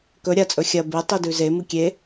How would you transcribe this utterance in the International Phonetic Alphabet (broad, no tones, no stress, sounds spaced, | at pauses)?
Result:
k ɵ ɾʲ a t͡sʼ ɵ xʲ ɐ b e tˤ i d ʉ z e m ɨ kʲ e